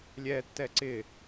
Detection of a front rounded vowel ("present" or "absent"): absent